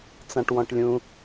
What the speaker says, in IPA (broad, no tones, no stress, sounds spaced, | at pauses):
t͡s ã ʈ w ɔ̃ ʈ lʲ ũ